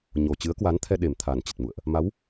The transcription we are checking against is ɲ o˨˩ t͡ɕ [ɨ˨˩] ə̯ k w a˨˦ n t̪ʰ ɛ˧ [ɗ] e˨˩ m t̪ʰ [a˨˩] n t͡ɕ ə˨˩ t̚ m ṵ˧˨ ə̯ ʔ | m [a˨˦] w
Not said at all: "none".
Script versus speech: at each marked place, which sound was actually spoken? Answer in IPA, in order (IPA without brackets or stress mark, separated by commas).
ɨ˨˦, ɗ, a˨˩, a˨˦